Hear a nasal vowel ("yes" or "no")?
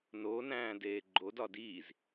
yes